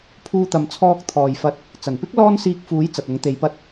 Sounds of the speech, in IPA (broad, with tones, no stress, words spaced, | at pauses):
pʰuː˧t̪ɐ˨mt͡sʰɔː˧k̚ t̪ʰɔː˨jfɐ˧t̚ | t͡sɐ˨˩npɪ˥k̚ lɔː˥nsiː˧k̚fuː˨˥j t͡sɐ˨t̚ʊ˨˥ŋt̪e˨˧jpɐ˥t̚